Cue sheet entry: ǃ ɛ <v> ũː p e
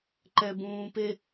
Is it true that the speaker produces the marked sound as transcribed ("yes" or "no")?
no